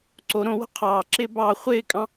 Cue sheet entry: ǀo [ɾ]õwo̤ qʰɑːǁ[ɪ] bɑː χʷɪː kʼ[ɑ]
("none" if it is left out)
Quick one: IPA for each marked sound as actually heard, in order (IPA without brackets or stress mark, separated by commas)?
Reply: ɾ, ɪː, ɑ̃